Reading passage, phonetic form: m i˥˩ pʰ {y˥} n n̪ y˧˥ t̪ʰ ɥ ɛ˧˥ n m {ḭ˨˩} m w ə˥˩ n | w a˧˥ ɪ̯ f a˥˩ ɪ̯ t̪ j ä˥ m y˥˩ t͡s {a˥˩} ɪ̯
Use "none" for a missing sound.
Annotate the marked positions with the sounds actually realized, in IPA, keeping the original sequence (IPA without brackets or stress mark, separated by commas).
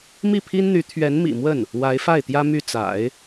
i˥, ḭ˨˩, a̰˨˩˦